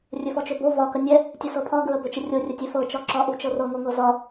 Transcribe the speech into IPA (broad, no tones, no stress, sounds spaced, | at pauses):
rʲ ɵ f ɔ t͡ʃ ɵ b o v ɒ k ə nʲ ɛ | tʲ ɵ s ɤ pʰ ɒ ɡ ɹ ə b ɵ t͡ʃ ə rʲ o rʲ ə tʲ ɛ f ɤ t͡ʃ ɒ ǁ ɒ ʔ u t͡ʃ ɤ r ɤ ŋ o ŋ ɤ z ɒ